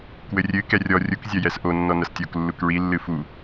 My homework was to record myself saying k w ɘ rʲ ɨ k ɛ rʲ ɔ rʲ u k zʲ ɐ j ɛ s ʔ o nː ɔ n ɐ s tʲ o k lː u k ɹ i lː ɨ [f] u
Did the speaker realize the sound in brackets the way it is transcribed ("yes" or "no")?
yes